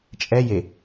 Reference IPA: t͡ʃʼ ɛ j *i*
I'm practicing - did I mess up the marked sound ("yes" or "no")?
yes